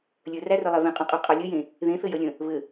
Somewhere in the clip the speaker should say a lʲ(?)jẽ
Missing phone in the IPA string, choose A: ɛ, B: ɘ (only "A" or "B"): B